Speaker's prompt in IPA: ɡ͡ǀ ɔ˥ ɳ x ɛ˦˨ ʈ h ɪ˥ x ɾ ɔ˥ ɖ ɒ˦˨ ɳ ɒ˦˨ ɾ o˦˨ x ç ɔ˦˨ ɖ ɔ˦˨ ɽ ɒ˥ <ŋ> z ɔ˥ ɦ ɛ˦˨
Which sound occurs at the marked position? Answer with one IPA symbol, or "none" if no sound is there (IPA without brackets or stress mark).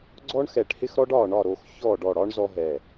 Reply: ɳ